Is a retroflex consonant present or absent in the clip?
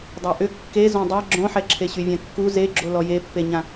absent